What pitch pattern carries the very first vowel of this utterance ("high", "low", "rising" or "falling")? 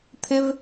high